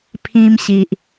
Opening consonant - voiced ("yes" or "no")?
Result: no